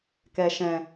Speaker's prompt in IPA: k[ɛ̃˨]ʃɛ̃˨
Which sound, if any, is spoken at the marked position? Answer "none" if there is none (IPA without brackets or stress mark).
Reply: ɛ˨